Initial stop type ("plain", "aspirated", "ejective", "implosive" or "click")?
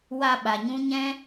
implosive